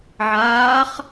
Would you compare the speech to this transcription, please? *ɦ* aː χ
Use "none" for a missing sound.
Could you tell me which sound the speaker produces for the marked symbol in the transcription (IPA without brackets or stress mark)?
ʕ